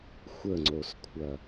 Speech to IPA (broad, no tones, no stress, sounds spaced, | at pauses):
xʷ ə ŋ͡ǀ o s kʷʰ ɐ